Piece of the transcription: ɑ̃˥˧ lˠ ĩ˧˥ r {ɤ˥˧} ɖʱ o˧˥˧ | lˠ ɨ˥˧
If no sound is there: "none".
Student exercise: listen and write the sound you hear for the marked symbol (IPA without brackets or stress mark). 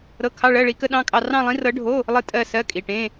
ɤ˧˥